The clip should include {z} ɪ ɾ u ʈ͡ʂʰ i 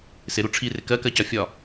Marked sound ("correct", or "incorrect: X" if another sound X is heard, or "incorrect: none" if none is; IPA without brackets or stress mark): incorrect: s